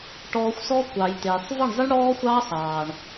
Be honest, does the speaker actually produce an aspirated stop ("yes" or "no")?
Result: no